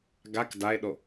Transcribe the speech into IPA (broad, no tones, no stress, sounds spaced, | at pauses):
ɡ a k d a e̯ ɗ o